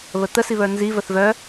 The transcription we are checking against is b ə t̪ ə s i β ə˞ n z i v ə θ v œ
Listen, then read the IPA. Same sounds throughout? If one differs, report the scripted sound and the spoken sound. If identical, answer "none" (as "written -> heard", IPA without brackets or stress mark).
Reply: b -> β